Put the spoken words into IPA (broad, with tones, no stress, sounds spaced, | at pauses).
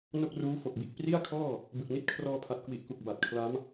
n o˥˩ k̚ r uː˦˥ f o˨˩ k̚ b i˨˩ ʔ p r i˥˩ a̯ kʰ ɔː˥˩ | b ɯ˨˩ k̚ n i˥˩ t̚ kʰ r ɔː˧ pʰ a˨˩ t̚ k w i˨˩ ʔ k u˨˩ k̚ b a˨˩ t̚ kʰ l a˦˥ m